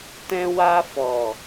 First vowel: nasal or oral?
nasal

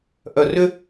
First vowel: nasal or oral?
oral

